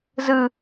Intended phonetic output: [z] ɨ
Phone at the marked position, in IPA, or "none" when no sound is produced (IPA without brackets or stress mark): z